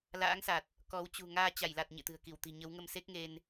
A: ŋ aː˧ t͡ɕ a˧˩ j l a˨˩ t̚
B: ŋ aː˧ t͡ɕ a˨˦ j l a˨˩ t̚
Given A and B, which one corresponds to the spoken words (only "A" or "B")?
A